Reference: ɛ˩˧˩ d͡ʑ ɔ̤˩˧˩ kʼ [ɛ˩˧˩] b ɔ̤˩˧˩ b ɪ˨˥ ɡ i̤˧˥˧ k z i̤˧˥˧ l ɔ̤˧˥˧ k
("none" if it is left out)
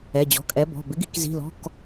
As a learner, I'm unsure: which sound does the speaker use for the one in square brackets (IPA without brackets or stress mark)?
ɛ˨˥